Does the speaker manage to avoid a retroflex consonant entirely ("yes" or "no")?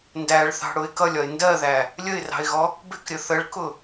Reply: no